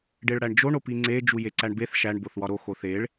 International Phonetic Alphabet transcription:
ɖeɭɽæɳd͡ʒo ɳopiŋ͡ǀe d͡ʒujeǀæɳbeθ ʃæɳ boθwɒɾo xoθeɭ

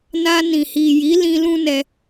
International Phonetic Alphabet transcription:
na˧nĩ˨ hi˨ji˨˦ lĩ˦ lũ˦nɛ˧

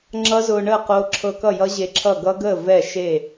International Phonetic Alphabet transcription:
ŋ͡ǁʌ˦˥zʊː˧ɳəː˥˩qoː˧ ǁʰɤ˧kʌ˥˩jʌ˦˥ ʑe˧ǁʰʌ˥˩ ɡʌ˦˥ɡəː˥˩ vɛ˥˩ ʃe˥˩

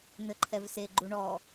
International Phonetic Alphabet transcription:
n̪ɘǃʰɛvse ɡ͡ǃuɳɔ

